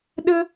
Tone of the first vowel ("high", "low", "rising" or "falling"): high